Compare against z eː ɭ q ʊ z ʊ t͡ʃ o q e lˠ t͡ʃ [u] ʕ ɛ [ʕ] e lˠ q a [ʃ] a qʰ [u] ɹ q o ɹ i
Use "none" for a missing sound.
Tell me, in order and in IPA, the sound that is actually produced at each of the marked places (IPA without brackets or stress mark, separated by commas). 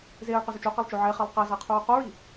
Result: o, χ, z, u